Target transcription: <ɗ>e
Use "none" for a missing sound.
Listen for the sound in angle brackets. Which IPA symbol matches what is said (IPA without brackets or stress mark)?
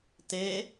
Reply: t